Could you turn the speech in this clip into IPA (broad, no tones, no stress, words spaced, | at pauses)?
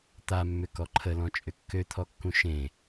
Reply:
t̪amːʏ kɔǃʰəlɔ̃ t͡ʃʼʏkːøt̪ʰɔkːũ ʃẽ